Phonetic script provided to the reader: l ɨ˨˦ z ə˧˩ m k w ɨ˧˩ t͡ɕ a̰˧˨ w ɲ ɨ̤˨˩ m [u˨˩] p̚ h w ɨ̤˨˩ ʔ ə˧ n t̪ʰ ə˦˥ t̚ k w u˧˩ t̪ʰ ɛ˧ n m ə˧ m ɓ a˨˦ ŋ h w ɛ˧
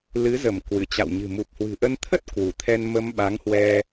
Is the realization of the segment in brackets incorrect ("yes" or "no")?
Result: no